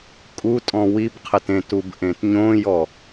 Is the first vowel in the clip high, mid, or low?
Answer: high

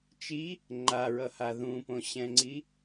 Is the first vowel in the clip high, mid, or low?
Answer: high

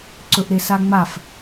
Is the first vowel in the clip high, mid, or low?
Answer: mid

